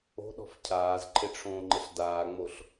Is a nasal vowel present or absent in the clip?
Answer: present